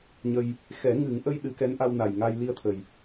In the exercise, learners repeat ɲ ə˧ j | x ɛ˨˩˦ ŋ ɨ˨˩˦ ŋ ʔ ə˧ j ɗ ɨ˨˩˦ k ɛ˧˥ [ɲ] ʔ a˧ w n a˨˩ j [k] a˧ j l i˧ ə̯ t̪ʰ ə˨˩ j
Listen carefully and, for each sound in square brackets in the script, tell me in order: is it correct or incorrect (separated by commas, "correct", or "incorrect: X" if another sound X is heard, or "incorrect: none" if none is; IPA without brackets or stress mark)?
incorrect: n, incorrect: ŋ